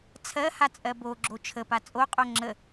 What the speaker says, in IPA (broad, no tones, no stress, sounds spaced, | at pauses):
t͡sʰ ɜ h a t͡sʼ ɜ b o ɡ͡ǁ o t͡ʃʰ ə p a t͡sʼ o qʼ o ŋ͡ǁ ə